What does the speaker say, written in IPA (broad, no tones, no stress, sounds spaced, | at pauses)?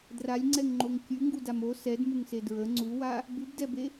d r a lʲ ŋ͡ǀ ɛ ŋ ŋ͡ǃ o ŋ kʲ ʉ ŋ ɡ u d a m o s ɛ d m u ŋ s e d ɹ ə ŋ͡ǀ u w a | b ʉ b d ɛ b e